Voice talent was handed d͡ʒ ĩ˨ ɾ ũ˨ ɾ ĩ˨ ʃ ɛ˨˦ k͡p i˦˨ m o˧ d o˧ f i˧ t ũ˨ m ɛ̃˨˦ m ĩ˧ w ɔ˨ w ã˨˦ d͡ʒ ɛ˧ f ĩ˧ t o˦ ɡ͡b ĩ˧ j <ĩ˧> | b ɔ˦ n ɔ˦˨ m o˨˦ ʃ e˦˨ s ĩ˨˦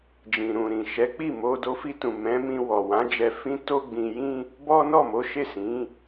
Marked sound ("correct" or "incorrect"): incorrect